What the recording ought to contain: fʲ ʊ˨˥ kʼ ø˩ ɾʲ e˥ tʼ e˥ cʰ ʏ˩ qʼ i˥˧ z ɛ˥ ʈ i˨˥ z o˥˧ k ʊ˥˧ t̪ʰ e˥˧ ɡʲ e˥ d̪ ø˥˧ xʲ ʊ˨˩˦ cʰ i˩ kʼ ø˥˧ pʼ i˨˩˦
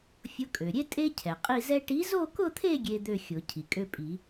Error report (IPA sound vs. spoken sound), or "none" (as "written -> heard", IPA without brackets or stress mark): ʏ˩ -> ɛ˩